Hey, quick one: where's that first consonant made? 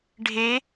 retroflex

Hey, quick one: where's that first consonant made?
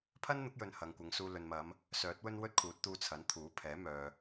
lips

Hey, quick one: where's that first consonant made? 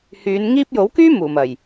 throat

